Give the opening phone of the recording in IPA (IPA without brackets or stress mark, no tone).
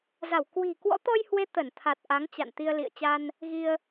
z